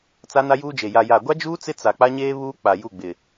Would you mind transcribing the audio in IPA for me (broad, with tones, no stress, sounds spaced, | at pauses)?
t͡s a˦ n a˦ j uː˦ d͡ʒ e˨ j a˨ j a˨ ɡʷ a˦ d͡ʒ uː˦ t͡s ɪ˦ t͡s a˨ k͡p a˦ ɲ eː˦ β uː˦ k͡p a˨ j u˦˨ ɡ͡b ɪ˨